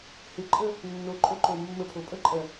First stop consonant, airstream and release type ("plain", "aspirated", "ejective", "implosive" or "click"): click